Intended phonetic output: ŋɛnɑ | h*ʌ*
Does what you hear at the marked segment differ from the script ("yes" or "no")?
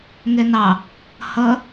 no